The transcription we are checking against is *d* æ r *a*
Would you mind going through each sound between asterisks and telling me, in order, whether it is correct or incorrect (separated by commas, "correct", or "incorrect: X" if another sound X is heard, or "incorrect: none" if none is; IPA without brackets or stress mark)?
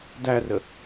correct, incorrect: ə